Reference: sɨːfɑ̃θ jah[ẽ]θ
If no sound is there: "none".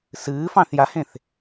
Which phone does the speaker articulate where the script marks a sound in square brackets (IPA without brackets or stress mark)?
ẽ